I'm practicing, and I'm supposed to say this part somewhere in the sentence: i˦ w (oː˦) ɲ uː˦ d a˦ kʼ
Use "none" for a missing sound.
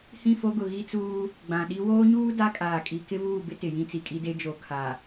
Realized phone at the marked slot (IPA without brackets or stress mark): oː˦